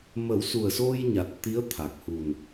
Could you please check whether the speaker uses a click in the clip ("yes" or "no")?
no